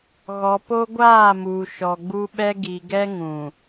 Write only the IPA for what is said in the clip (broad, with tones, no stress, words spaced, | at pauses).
ɣɔ˨po˦ɡʷaː˦˨muː˨ ʃɔ˨ɡ͡bu˦ɓɛ˦ ɡi˨ɡɛ˦ ŋũ˨